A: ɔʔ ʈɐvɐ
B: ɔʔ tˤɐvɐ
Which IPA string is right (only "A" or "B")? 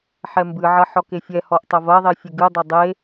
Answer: B